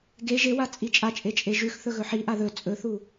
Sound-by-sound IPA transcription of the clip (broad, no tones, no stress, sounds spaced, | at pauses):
ɡ e ʒ e w a t͡sʼ i t͡ʃʼ a t͡ʃʼ e t͡ʃʼ e ʒ ʉ x θ ɵ ɣ ɵ ħ i ʔ a ð ɵ t͡sʼ ɵ θ u